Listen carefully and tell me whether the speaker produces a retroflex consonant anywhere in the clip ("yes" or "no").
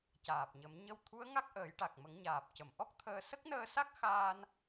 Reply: yes